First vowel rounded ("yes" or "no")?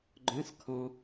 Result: yes